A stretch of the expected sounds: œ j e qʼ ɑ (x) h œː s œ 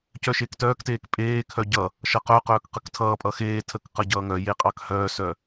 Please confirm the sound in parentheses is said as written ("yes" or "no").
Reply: no